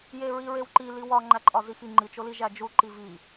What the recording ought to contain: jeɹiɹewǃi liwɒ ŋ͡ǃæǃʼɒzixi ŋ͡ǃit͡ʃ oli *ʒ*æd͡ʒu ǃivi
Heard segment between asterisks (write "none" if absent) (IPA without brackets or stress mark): ʒ